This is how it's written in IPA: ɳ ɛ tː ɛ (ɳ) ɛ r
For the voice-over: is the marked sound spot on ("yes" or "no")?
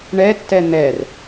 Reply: no